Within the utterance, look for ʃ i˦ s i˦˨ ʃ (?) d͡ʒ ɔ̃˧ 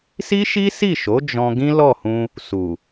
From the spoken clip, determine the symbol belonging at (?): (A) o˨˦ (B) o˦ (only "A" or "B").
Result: A